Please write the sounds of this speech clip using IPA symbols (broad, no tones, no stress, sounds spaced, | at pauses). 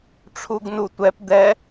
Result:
ʈ͡ʂʰ u ɡ n u tʷ ɛ p d̪ ɛ